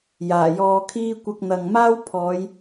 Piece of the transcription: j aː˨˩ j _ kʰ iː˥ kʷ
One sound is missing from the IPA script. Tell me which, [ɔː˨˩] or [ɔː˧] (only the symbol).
ɔː˧